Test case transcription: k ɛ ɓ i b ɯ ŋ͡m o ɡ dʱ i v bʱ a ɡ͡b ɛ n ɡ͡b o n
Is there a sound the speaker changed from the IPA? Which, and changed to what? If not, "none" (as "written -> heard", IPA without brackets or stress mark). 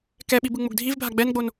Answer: none